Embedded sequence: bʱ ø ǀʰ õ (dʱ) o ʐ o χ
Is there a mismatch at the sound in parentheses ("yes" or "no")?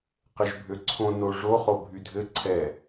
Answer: yes